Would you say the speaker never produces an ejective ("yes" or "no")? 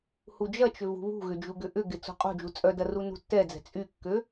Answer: no